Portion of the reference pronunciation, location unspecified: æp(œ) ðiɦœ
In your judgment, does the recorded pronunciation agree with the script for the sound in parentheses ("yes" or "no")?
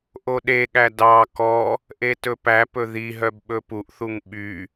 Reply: no